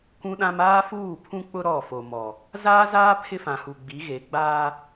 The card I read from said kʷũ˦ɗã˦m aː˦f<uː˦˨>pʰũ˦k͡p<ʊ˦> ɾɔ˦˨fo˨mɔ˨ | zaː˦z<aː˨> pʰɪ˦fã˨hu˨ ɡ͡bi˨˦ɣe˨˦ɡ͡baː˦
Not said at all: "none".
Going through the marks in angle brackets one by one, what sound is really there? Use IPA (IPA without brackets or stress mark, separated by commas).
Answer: uː˦˨, ʊ˦, aː˦